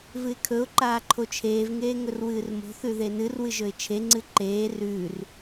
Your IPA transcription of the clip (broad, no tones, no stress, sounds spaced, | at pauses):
v ɨ ɪ̯ kʰ ɵ ʊ̯ ǃ aː ǃʰ o t͡ʃʰ eː v ŋ eː ŋ ɵ r w ɨː r m o̤ θ ʉ ð e n ɨ r w ɨ ʒ ɵ ɪ̯ t͡ʃʰ e ŋ͡ǀ ɨ ǃ eː r ʉː r